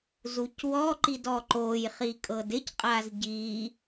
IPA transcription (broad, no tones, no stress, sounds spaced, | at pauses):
z u c w ɔ ǃ i d ɔ ǃ o j χ i kʼ ɤ d ɪ c qʼ a z ɟ i